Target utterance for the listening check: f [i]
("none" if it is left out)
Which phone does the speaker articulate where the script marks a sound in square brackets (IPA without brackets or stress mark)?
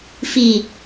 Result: i